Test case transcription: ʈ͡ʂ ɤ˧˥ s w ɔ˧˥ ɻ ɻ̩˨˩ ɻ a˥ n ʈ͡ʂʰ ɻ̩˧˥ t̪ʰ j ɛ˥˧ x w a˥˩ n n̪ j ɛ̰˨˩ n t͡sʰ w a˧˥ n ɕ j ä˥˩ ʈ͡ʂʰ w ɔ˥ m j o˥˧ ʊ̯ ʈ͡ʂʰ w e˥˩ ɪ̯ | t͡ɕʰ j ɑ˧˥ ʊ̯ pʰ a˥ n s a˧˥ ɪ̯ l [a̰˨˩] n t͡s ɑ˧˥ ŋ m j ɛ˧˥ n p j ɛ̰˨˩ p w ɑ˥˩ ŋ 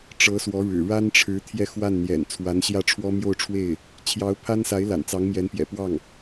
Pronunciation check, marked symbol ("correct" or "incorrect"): correct